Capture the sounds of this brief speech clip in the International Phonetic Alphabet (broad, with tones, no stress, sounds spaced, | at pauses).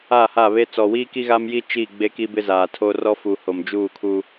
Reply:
a˦˨ h a˦˨ β e˦ t͡s ɔ˨ w iː˦ k i˦ ɣ a˦ m j i˦ t͡ʃ i˦˨ ɡ͡b e˦ k i˦ b ɪ˦ z aː˨ tʰ o˦ r ɔ˦ f u˨ h o˨ m d͡ʒ uː˦˨ kʰ u˦